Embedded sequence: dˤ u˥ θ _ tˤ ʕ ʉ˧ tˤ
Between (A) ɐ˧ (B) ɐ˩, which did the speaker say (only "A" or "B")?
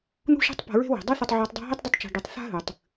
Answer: A